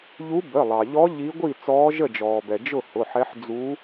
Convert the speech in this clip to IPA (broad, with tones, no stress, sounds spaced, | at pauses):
ʎ u˧˥ b ə˩˧˩ lˠ ɑ˩ ʎ ɔ˧˥ ʎ i˧˥ ɡʷ i˥˨ t͡s ɔː˧˥ ʒ ə˥˨ d͡ʒ ɔː˩ b ɛ˩ d͡ʒ ʊ˥˨ h ʊ˩˧˩ ħ ɛ˧˥ ħ d͡z u˧˥